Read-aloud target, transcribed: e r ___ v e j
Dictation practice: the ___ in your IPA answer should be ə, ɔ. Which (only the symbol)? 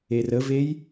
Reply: ə